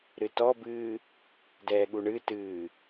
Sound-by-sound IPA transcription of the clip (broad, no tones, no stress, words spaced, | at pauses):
ɾɨtɔbɨː | dɛːɠuɳɨtɨː